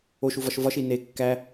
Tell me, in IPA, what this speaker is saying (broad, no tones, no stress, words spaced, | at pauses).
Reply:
oʃuvɒʃ vɒʃi ne kːæ